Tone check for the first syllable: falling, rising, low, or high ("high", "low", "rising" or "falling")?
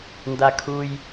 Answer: low